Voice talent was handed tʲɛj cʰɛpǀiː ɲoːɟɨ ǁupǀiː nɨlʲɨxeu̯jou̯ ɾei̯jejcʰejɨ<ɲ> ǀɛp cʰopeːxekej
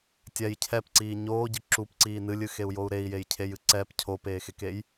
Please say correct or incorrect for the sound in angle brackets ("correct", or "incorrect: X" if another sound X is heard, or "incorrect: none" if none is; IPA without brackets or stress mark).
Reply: incorrect: none